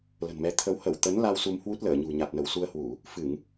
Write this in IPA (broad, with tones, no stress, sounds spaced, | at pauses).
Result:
l ə̤˨˩ n m ɛ˨˦ t̪ʰ ə˨˦ w h ə˧˩ w t̪ ə˨˦ n l a˧ w s u˧ m h w u˦˥ t̚ l əː˧˩ ɲ ṳ˨˩ ɲ a˨˩ t̚ n ə˧˩ w s u˧ ə̯ h w u˧˩˨ | f ɨ˧˩˨ ŋ